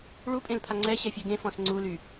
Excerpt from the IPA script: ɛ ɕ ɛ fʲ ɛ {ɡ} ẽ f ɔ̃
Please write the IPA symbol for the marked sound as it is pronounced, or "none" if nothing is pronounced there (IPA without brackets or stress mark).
ɡ